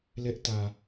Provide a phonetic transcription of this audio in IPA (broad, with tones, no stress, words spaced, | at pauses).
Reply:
lɛ˦ʔtä˨